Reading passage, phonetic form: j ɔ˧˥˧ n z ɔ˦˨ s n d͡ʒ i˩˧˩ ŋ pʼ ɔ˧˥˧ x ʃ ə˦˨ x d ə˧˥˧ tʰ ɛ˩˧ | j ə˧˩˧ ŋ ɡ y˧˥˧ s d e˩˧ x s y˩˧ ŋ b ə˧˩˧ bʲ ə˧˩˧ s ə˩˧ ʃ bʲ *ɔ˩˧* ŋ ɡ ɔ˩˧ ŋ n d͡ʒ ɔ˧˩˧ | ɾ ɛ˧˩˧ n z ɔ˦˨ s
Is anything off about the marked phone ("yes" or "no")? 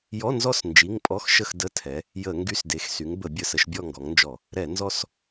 yes